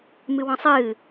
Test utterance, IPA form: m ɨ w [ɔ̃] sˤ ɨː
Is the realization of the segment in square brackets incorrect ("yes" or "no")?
no